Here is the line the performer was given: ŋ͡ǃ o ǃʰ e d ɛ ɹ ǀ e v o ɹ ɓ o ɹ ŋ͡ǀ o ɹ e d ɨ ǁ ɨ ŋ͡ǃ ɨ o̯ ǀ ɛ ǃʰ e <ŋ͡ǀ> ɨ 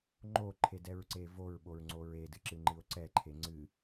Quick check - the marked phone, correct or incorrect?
correct